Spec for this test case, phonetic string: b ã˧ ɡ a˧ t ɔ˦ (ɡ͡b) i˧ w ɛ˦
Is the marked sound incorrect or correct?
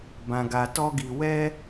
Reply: incorrect